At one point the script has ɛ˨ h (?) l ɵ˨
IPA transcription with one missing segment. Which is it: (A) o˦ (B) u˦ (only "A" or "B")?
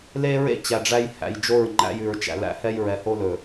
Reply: A